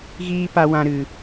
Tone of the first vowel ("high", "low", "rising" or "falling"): high